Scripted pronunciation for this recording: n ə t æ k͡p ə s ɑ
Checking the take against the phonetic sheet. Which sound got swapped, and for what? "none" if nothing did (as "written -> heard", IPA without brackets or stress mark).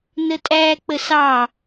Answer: t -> tʼ